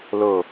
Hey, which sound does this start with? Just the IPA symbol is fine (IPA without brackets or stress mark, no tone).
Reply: l